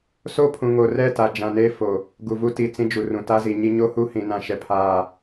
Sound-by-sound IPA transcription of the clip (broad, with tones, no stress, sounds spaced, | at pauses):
s o˦ pʰ ũ˨ ŋ o˨ r ɛ˦˨ t a˨ d͡ʒ ã˨ n eː˦ f o˨ | ɡ u˨ v u˦ t i˨ t͡s ĩ˦ d͡ʒ u˨ r ũ˨ t a˦ z i˨ ɲ i˦ ɲ o˦ h u˦ h ĩ˨ n ã˦˨ ʃ ɛ˦ pʰ aː˦˨